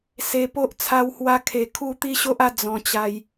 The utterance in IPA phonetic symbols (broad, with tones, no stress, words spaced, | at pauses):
se˧po˦ʔ t͡sʰa˧whwa˧kʰe˨˩ kʰu˥˧t̪i˦ɕo˦ʔa˥˧ d͡zɔ̃˧t͡ɕa˧j